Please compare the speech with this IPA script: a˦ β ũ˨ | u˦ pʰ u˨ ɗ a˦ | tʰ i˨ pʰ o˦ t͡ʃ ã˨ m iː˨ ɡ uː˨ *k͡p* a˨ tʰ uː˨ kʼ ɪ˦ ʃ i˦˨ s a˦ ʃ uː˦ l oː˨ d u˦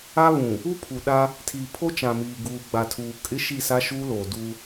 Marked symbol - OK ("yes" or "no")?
no